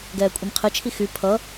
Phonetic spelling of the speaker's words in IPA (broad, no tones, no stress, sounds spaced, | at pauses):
ɡ ɛː kʷʼ i m qʰ ɪ t͡ʃʰ i x y pʰ ʌ